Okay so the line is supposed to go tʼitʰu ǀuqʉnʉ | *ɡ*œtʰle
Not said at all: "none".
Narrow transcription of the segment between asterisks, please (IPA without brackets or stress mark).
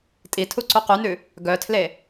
ɡ